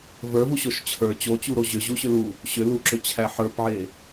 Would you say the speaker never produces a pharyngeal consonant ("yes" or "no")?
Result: no